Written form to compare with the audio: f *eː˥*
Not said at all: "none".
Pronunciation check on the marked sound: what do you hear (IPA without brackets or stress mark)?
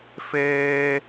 eː˥